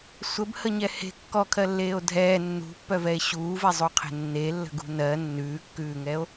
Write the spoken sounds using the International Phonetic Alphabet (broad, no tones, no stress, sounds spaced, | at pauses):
sʷ ə b h ə ɲ ɛ h e̤ kː ɔ kʰ ɜ lː eː o̯ dʱ ɛː nː ṳ pː œ v ɛ e̯ ɕ uː v ɛ zˤ u qʰ e̤ nː e lː ə̤ ɡ ṳ n ɜ nː ʉː kː ʉː ŋ ɛ o̯